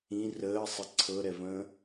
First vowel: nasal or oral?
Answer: nasal